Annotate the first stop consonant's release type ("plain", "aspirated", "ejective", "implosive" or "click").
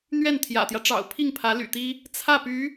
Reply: aspirated